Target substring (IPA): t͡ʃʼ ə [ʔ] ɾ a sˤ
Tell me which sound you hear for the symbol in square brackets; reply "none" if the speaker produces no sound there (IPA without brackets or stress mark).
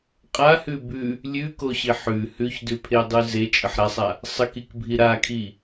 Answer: ħ